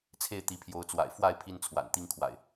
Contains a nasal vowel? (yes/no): no